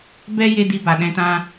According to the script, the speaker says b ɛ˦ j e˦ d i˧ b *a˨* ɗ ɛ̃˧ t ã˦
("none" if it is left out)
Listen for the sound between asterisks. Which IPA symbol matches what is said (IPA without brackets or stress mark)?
a˨